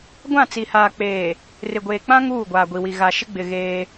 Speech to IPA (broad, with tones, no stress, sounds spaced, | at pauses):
ɡʷ ã˦˨ t͡s i˨ h aː˨ k͡p eː˨ | r ɪ˨ ɡʷ eː˨ k͡p ã˦ ŋ uː˦˨ ɡʷ aː˨ ɡʷ i˨ w i˨ ɣ a˨ ʃ ɪ˦ ɡ͡b ɪ˨ ɣ eː˦